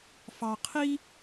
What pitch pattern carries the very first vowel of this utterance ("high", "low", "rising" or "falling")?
low